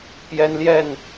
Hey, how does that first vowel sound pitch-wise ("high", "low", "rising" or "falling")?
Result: high